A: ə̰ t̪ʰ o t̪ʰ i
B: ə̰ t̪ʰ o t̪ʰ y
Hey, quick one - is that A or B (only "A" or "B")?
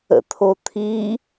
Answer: A